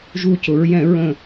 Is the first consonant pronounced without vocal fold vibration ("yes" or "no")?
no